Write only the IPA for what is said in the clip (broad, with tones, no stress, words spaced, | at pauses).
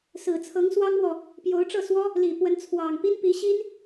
sɹ̩˨˩t͡sʰɤ˧˥ŋswɑ˥ŋmwɔ˨ | pjo˧˥ʊ̯ʈ͡ʂɤ˥˩swɔ˥ | li˨˩pwə˧˥n t͡sʰwɑ˨˩ŋpi˥n pi˧˥ɕi˥n